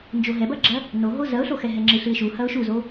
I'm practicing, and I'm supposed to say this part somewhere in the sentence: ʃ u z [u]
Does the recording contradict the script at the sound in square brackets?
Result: yes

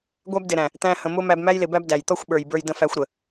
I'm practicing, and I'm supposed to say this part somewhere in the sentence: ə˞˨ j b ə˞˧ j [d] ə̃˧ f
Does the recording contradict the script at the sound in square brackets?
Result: no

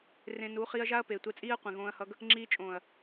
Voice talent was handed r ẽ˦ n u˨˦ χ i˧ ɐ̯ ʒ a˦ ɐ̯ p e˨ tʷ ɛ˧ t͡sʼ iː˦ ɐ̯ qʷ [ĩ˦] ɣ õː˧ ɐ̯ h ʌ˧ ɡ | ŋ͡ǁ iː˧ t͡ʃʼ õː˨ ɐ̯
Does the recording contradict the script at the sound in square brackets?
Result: yes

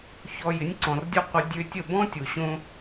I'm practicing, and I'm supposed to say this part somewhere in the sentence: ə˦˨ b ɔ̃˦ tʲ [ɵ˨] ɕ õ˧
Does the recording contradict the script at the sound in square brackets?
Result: yes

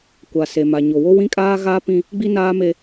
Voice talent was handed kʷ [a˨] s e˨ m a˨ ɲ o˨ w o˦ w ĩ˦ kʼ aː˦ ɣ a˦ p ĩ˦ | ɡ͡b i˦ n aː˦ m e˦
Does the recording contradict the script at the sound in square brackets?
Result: no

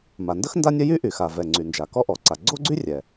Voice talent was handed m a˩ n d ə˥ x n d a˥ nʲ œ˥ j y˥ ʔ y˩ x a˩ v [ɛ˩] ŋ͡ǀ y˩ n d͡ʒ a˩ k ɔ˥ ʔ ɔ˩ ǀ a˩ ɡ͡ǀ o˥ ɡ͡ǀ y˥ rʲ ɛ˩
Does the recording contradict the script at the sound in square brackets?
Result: no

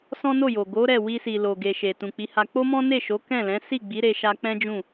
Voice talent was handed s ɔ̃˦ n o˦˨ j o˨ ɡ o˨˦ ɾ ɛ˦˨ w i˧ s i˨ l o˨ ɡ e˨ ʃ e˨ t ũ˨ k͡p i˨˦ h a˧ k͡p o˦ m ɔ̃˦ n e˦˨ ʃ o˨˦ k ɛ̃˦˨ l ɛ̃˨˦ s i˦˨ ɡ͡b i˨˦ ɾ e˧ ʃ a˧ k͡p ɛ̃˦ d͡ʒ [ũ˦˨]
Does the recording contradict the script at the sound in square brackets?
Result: no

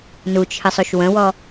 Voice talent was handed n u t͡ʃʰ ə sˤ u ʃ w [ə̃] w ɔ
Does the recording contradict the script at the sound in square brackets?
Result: no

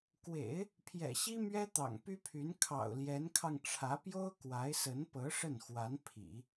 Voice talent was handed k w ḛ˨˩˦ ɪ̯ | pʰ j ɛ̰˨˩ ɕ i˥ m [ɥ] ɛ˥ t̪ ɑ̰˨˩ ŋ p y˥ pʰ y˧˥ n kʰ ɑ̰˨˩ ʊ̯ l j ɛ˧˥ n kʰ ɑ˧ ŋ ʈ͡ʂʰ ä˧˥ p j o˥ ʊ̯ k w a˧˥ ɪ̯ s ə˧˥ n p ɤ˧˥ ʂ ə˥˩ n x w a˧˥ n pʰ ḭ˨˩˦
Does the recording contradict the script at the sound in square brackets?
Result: no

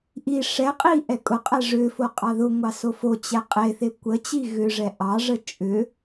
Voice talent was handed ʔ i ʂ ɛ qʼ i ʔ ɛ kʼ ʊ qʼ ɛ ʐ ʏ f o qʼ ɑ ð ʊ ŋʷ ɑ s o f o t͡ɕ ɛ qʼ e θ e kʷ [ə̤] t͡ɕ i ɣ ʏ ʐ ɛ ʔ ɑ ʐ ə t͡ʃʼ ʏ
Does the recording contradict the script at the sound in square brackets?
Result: yes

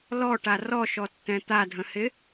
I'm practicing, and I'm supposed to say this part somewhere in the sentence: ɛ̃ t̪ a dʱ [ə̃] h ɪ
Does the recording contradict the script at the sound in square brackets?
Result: no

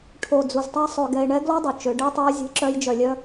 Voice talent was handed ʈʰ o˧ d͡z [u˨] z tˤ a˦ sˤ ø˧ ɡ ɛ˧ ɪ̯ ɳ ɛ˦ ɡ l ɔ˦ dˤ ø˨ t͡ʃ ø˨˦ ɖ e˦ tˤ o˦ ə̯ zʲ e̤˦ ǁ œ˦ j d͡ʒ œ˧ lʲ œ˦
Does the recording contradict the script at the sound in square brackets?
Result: no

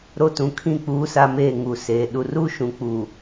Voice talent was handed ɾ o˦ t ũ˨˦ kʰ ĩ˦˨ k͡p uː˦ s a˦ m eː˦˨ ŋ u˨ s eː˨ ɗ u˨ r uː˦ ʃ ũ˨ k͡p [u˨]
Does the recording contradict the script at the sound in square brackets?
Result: yes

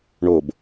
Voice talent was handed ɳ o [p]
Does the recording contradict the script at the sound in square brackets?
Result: yes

